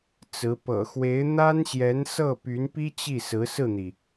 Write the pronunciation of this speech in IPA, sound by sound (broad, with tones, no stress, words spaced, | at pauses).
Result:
t͡sɹ̩˧˥ pɤ̰˨˩xwe˧˥ɪ̯ n̪a˥nɕjɛ˧˥nsɤ˥˩ py˧˥npi˥ t͡ɕi˥˩sɹ̩˧˥ sɹ̩˥˩n̪i˩